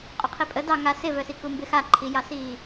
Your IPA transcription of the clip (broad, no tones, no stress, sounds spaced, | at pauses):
qʼ o qʰ i pʼ ə d ɑ ŋ a s ɪ v œ s i k u m b ɪ x a ǃʰ i j ɑ s iː